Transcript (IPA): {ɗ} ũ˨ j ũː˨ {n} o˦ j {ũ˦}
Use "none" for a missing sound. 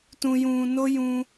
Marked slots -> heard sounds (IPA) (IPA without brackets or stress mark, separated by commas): t, n, ũ˦